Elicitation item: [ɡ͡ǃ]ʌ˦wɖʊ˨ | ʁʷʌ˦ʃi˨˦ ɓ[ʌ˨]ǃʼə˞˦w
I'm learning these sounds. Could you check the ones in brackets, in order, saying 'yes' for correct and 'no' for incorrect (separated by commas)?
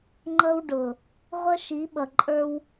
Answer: no, yes